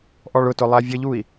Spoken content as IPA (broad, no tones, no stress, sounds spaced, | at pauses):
ʔ ɔ ɭ ʊ t ʊ lˠ æ vʲ ə ʎ u i̯